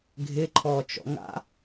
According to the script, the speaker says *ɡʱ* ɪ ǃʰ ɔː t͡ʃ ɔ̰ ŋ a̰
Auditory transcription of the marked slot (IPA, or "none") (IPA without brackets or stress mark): ɡʱ